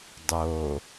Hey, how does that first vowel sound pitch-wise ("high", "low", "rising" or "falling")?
low